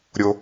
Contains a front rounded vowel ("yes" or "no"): no